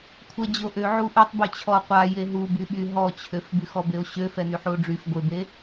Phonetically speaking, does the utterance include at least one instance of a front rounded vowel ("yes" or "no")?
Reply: yes